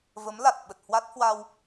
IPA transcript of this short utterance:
v ə˨˦ m l a˨˩ t̚ ɓ ə˨˩ t̚ h w a˦˥ t̚ h w a˧ w

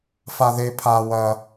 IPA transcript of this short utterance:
f a˥ ð e˥ pʰ a˥ w ɐ˥

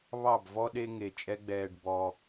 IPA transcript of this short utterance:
β ɑ˦˨ b v ɔ˦ ɗ e˦ ŋ e˨ t͡ʃʼ ɛ˦ ɡ͡b ɛː˧ ɖ b ɔ˧

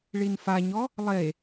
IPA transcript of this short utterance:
ɭ i n f a ɲ ɔ | lˠ e

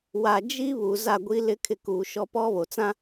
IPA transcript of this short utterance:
w a˨ d͡ʒ i˦ β u˨ z a˦˨ ɡʷ i˦ l ɪ˦ kʰ ɪ˦ k uː˨ ʃ ɔ˦ p ɔ˦ β o˨ t͡s ã˦

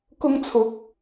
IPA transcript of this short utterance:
k ʊ˧ ŋ t͡sʰ ʊ˨˥ k̚

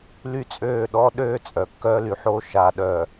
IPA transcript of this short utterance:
l y˦ t͡sʼ øː˦˨ ɗ ɔ˦ ɗ øː˦ t͡sʼ œ˨ kː œː˦ l y˨ ħ oː˦ ʃ a˨ ɗ œ˨

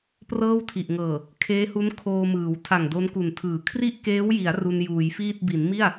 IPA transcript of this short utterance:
p r ɤː˥˩ w tʰ i˨˩ ʔ ŋ ɤː˨˩ | kʰ eː˦˥ h u˦˥ n kʰ oː˧ m ɯː˩˦ w tʰ a˨˩ ŋ d o˦˥ n k u˨˩ n tʰ ɯː˨˩ kʰ r i˥˩ ʔ k eː˦˥ w j i˩˦ a̯ r u˧ n j uː˩˦ j f iː˥˩ t̚ b i˩˦ n m i˥˩ a̯

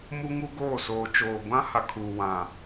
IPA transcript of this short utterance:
m u˦ ŋ u˦ ɡ oː˦˨ s oː˨ t͡ʃ oː˨ ɡʷ ã˦ h a˨ kʰ u˨ w ã˨

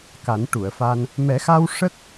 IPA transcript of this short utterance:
k a˨˩˦ n ʈ u˨˩˨ ə̯ f a˧ n | m ɛ˨˩˦ x a˧ w ʂ ə˦˥ k̚

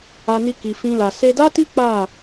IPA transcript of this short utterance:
a˧ n i˧ k i˧ f ĩ˦ l a˧ s e˧ d a˦ t i˦ k͡p a˦˨

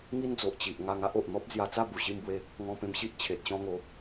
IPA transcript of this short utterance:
ŋ i˦ n d͡z o˨ ʔ t͡ɕ i˨ ʔ ŋ a˧ ŋ a˦ ʔ o˨ ʔ n̪ ɔ˦ p̚ d͡z j a˧ t͡s a˥˧ b u˨˩ ɕ i˥˧ m b w e˦ | ŋ ɔ̃˧ p ẽ˧ m ɕ i˦ ʔ t͡ɕʰ e˨ t̚ ɕ ɔ̃˧ ŋ o˨˦

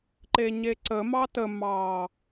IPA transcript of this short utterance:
ǃ e ɲ e ǀ ə m ɑ t ə m ɑ

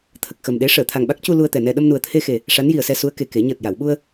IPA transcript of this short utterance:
t̪ʰ ə˨˩ k̚ x ə˨˩ m ɗ e˧˥ ʂ əː˨˩˨ t̪ʰ a˨˩ ŋ ɓ a˦˥ k̚ c u˧ l u˧ ə̯ t̪ ɛ˨˩ n ɛ˧ ɗ ə˧ m n u˨˩ ə̯ t̪ʰ e˧ x e˨˩ | ʂ a˧˥ n j i˨˩ ə̯ s ɛ˧ s u˧˥ ə̯ k e˨˩ k e˨˩˦ ɲ əː˨˩ t̚ j a˨˩˨ w ɓ u˧ ə̯

